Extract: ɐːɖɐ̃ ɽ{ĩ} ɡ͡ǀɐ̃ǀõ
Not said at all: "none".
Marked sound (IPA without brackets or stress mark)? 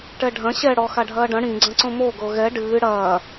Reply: ĩ